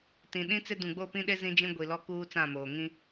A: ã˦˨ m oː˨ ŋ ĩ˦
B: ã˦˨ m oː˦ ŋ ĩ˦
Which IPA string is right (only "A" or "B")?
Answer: A